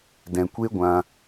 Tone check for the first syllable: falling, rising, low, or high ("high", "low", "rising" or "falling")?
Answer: low